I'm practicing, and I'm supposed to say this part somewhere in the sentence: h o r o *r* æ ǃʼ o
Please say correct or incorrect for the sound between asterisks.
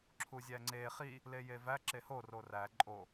correct